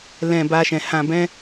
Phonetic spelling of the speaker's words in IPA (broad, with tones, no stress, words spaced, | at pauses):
lɛ̃˨ ba˧ʃɛ̃˨ hã˨bɛ̃˧